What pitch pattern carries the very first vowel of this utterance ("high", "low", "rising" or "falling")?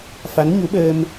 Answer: rising